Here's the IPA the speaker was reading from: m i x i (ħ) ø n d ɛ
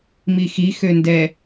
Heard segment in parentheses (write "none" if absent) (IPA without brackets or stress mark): x